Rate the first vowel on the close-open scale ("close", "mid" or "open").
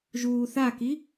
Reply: close